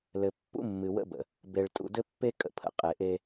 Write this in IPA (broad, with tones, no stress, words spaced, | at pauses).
lɘ˨pːṵ˦mːɨ˨ wə̰˦bə̰˨ | be˨ɭtʼṵ˨dɘ˦pːe˦ kʼə̰˨pʰə̰˨ qʼe˨ʔe˦